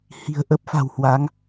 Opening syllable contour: low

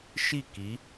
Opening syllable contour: falling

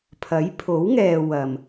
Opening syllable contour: rising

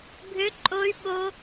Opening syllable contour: high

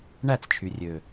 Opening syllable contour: falling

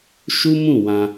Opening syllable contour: high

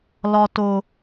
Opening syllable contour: high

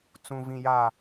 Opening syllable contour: low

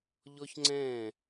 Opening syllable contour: high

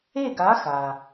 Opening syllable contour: falling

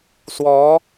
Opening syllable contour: rising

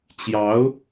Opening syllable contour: rising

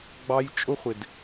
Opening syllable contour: high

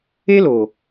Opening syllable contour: high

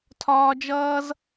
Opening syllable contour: high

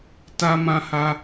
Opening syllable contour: high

